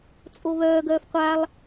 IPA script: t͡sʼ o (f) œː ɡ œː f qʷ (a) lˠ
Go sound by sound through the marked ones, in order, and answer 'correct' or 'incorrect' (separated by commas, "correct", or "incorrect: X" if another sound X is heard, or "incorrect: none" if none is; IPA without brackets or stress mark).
incorrect: β, correct